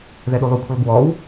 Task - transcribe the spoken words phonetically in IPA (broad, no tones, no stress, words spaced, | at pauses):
ðɛɗulˠukʷʰəlˠ bwɔw